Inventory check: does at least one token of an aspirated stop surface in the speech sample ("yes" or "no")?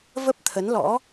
yes